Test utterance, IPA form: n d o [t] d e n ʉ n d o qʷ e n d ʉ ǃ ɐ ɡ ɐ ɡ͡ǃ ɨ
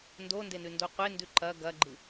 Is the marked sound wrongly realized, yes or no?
yes